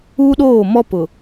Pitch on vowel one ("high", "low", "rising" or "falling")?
high